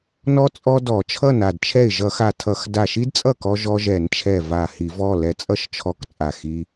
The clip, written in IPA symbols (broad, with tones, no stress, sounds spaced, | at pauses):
n ɔ˧ t͡sʼ ɔ˧ d ɔ˧˩˧ t͡ʃʰ ʌ˥˩ n a˥˩ d t͡ʃʰ ɛ˥˩ ɪ̯ ʒ ʌ˧˩˧ x a˧˩ tʰ ʌ˧˩˧ x d a˧˩ ʃ i˦˥ d t͡sʼ ʌ˥˩ k ɔ˧ ʒ ɔ˧ ʒ ɛ˧˩˧ n t͡ʃʰ ɛ˧˩ v a˧˩ h i˧˩˧ v ɔ˩˧˩ l ɛ˧˩ t͡sʼ ʌ˥˩ ʃ t͡ʃʰ ɔ˧˩ k t͡sʼ a˧˩ x i˧